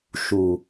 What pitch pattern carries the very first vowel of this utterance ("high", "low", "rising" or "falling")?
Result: low